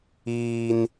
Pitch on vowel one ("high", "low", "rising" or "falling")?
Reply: high